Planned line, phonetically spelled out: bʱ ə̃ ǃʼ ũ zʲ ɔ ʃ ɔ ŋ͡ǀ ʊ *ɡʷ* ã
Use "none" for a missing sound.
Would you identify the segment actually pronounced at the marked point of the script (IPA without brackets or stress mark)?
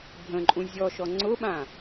ɓ